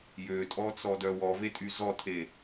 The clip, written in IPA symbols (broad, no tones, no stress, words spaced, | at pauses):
jøtʼɔt͡sɔdœ wɔvetʼy zɔtʰe